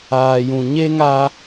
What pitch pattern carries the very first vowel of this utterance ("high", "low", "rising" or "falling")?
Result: low